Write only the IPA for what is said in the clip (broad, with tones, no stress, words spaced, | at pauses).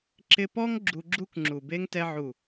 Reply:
ǁɪ˧pɔ˦ŋ ɡ͡ǁu˧ɡ͡ǁu˦kŋ͡ǁu˨be˦ŋ tɛ˧ʕu˨